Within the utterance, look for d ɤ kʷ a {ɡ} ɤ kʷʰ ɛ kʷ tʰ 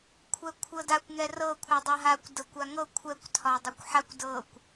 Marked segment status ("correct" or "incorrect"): incorrect